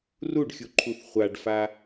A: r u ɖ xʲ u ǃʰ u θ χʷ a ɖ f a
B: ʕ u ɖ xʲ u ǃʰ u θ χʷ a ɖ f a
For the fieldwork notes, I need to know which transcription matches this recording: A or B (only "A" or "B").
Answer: A